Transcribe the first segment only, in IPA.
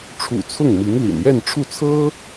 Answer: ʈ͡ʂʰ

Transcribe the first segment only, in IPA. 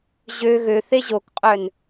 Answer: ʑ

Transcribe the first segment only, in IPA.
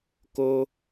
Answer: k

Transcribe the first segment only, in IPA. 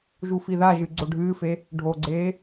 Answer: ʒ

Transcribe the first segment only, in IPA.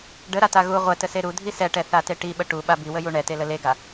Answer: ɖ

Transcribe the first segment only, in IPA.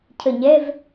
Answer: cʰ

